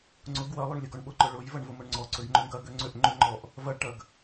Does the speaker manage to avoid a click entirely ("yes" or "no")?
no